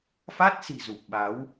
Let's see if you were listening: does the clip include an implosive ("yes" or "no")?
yes